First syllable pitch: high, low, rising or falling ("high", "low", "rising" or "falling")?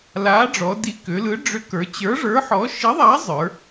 rising